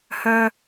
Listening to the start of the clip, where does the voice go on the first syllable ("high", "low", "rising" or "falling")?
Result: high